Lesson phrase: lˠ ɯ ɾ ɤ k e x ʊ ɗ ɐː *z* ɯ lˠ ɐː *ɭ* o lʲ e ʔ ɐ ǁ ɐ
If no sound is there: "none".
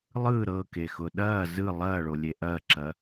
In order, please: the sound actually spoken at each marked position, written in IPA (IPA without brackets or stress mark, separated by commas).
z, ɭ